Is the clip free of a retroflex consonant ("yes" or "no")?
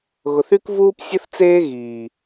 yes